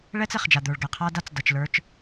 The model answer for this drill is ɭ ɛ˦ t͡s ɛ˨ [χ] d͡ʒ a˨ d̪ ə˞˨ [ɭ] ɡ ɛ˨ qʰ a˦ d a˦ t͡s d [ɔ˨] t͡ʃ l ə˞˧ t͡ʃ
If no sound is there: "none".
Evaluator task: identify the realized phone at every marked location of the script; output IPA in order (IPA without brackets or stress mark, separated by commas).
χ, ɭ, ʌ˨